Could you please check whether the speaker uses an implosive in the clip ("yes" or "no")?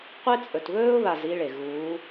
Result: no